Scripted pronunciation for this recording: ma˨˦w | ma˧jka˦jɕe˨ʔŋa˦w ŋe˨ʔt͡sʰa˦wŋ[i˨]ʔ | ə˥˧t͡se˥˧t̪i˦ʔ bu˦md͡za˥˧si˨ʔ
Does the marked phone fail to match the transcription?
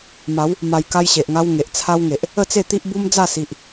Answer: yes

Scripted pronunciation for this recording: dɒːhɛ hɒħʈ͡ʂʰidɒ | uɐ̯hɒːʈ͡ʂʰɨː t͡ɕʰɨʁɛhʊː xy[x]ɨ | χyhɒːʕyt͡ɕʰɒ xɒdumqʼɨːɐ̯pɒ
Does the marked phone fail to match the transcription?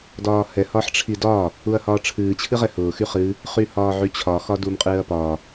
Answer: yes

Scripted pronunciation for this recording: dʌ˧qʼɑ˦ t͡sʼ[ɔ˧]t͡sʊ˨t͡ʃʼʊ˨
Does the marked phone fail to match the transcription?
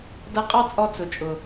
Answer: no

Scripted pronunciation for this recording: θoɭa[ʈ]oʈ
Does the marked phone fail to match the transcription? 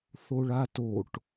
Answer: yes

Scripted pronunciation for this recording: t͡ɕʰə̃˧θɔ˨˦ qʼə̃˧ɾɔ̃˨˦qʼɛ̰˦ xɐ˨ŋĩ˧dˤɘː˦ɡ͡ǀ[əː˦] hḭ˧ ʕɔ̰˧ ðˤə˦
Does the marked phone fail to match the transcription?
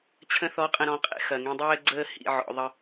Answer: no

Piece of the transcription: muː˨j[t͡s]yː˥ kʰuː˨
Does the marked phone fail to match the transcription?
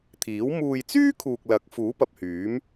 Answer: no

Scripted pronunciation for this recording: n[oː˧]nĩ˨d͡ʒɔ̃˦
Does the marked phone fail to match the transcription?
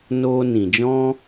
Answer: no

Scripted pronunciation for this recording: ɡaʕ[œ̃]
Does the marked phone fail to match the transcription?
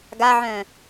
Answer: no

